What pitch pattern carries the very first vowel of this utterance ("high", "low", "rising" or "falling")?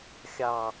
low